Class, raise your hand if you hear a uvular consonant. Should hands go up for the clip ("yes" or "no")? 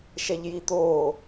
no